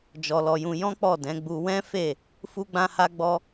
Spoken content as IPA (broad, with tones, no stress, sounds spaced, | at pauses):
d͡ʒ ɔ˧ l ɔ˧ j ũ˧ j ɔ̃˦ k͡p ɔ˦˨ d ɛ̃˨˦ ɡ͡b u˧ w ɛ̃˦ f e˦˨ | f u˦ ɡ͡b ã˦ h a˦ ɡ͡b ɔ˦